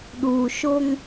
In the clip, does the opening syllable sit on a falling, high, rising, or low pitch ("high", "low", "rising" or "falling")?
low